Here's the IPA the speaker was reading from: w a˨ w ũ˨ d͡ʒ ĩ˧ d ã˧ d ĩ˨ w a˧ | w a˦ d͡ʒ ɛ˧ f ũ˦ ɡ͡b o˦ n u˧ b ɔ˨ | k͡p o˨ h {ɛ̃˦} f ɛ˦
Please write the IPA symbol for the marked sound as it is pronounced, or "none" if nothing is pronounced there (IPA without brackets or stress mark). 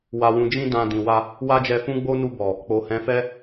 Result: ɛ̃˨˦